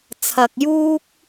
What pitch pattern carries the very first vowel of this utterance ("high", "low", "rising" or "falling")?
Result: low